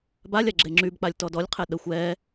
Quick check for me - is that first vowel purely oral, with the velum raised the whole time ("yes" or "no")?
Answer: yes